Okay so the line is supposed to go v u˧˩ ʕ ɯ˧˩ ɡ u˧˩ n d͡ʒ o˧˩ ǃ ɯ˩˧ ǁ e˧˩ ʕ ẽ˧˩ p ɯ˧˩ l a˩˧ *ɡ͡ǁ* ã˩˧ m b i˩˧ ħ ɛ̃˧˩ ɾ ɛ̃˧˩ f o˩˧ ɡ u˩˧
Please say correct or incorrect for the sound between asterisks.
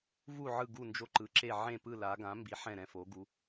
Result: incorrect